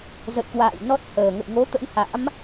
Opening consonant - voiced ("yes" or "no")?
yes